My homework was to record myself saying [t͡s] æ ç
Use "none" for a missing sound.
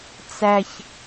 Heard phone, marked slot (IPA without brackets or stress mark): t͡s